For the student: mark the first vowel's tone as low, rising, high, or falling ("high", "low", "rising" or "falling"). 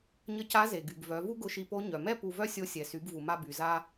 rising